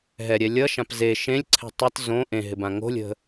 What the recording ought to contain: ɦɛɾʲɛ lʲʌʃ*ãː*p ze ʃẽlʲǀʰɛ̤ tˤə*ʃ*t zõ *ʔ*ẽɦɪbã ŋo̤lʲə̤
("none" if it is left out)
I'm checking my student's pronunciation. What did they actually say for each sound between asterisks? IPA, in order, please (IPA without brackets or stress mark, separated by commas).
ã, none, ʔ